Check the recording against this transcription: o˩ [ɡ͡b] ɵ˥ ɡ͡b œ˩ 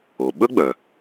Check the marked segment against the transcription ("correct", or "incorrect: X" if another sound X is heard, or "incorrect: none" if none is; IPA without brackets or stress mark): incorrect: ɓ